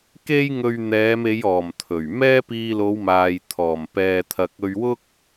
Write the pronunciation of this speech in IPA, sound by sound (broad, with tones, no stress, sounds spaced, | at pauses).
k e˥ j ŋ ɵ˧ ɥ n̪ ɛː˨˧ m e˨˧ j ɔː˨˩ m t̪ʰ ɵ˨˩ ɥ m ɛː˥ p iː˧ l o˨˧ w m aː˨ j t̪ʰ ɔː˨˩ m p ɛː˨ t̪ʰ ɐ˨ k̚ ɵ˧ ɥ w ʊ˥ k̚